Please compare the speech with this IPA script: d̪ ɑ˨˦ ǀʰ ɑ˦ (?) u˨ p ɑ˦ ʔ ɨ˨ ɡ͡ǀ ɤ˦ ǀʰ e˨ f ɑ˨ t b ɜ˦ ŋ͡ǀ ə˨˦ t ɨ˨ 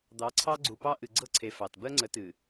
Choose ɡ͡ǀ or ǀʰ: ɡ͡ǀ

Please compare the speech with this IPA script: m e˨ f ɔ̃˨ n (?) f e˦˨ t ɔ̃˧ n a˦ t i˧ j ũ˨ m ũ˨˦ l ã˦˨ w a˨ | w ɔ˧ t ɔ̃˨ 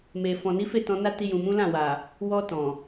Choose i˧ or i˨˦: i˨˦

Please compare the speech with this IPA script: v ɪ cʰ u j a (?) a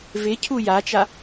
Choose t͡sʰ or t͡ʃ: t͡ʃ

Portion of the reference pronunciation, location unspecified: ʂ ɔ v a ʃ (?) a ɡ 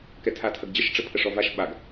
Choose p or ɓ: ɓ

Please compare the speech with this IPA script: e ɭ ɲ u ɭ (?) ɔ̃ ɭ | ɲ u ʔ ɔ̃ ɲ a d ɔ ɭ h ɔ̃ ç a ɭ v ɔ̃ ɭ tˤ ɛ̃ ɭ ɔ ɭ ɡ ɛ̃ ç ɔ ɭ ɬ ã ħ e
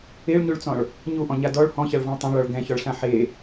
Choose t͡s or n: t͡s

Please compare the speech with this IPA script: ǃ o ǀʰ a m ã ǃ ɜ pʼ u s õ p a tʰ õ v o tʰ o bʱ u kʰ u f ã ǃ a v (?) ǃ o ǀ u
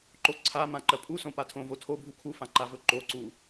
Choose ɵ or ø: ɵ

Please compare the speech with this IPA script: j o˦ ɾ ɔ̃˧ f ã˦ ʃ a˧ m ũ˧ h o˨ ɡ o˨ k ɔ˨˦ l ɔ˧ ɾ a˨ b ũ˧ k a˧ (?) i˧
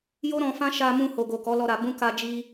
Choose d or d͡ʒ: d͡ʒ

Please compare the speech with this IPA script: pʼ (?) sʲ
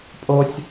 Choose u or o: o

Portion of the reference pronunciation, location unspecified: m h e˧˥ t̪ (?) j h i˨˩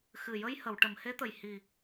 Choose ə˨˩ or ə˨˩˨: ə˨˩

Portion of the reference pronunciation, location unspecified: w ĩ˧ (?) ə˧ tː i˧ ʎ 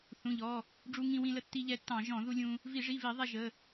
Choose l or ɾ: l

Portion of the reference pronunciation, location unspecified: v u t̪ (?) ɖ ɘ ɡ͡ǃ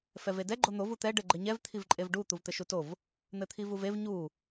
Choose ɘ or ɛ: ɛ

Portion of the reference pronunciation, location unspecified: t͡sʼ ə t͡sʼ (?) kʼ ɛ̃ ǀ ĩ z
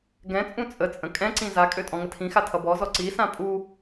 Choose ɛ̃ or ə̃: ə̃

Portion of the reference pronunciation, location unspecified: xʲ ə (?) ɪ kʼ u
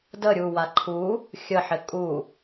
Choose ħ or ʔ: ħ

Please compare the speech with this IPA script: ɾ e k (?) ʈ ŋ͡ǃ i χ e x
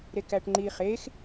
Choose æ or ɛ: æ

